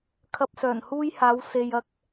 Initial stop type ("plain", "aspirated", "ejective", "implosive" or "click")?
aspirated